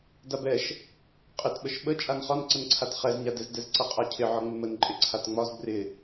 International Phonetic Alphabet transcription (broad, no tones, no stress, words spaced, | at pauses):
dabɛʃ | qʼɪtɓəʃ ɓə t͡ʃʼanχɒnǀənǀʰat χɛzɲadɛz dɛzǀʌqʼacʰɪ ʕɒŋ͡mɪmənǃʼɪ ǀʰatŋ͡mɒz brɪ